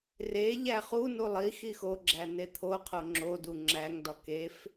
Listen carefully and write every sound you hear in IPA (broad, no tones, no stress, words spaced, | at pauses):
re ʎæχunu lˠi xixoɡ͡ǁæ net̪ʰoqʰo ŋ͡ǁodu ŋ͡ǁæŋdɒ kef